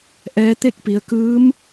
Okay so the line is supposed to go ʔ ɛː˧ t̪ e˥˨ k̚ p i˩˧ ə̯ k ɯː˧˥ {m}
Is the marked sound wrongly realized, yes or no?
no